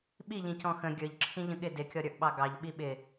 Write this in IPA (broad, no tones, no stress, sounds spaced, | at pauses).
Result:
ɓ i ʎ ĩ c ɔ̃ x ə̃ ɡʲ ə˞ ʎ ǁʰ ĩ ʎ ə̃ ɠ ɪ d ɪ kʲ ɔ ɾʲ ə˞ ʔ ɓ ɑ ɡ ɑ ʎ ɓ i ɓ ɪ